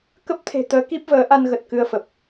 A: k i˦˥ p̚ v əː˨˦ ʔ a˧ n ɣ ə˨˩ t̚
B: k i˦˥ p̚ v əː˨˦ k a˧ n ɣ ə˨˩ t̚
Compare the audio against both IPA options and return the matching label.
A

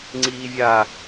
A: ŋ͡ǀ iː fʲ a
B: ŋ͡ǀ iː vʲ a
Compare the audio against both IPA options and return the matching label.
B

